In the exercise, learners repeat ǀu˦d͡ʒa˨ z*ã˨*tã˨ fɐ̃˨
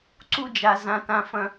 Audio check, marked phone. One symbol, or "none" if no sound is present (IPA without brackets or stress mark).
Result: ã˨